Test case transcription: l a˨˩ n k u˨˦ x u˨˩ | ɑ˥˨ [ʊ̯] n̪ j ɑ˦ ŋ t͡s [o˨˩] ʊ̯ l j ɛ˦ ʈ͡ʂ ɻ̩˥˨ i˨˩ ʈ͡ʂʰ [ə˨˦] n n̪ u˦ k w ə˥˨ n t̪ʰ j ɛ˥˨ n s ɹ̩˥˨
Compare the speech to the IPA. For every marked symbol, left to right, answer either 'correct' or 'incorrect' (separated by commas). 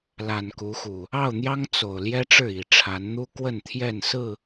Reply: correct, correct, incorrect